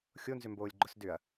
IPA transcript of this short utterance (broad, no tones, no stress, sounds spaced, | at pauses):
xʲ o n z ʏ m b oː lʲ ɡ͡ǃ ʊ s d ʏ ɐ̯